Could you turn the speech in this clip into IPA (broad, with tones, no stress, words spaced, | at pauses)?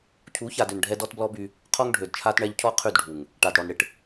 cʰu˨˦ça˨d ʏ˨n ɖʱɛ˦dɔ˦tblɔ˦by˦ | qʰɔ˦ŋɖʱø˨dt͡ʃʰa˦tɳɛ˦ʎ cʰɔ˦qʰy˦˨dɖʱu˨ŋ | ʈa˨dɽɔ˨nɽɪ˨ʈ